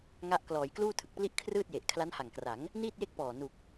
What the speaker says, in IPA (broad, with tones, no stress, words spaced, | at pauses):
ŋa˦˥ʔ klɔː˩˦jkluː˥˩tʰɯ˨˩k̚pli˥˩ʔ kʰrɯː˥˩t̚je˨˩ʔ kʰla˦˥nha˨˩ŋkra˩˦ŋ | niː˥˩t̚je˥˩k̚pɔː˨˩ nu˨˩k̚